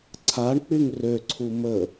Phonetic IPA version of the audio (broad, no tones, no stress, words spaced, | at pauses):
ǀʰaɳ k͡pyŋrøǀʰu mə